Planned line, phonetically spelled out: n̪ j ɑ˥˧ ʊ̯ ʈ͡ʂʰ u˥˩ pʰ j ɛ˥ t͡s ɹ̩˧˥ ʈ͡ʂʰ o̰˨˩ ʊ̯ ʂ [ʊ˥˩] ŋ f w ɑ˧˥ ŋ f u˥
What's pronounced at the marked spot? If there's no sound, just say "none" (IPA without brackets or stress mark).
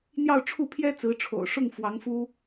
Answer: ʊ˥˩